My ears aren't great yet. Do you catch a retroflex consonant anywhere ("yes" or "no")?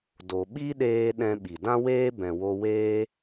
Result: no